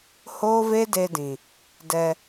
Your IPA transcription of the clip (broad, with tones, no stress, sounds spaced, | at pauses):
h oː˦ v e˦ d e˧ d ĩ˨ | d ɛ˧